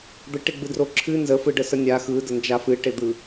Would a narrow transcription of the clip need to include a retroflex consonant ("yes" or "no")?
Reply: yes